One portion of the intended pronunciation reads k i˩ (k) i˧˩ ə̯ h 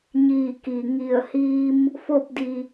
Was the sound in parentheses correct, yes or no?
no